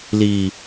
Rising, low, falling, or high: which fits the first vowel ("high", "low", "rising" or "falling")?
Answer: low